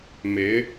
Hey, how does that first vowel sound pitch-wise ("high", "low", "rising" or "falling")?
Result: rising